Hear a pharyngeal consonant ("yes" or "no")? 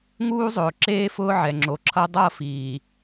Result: yes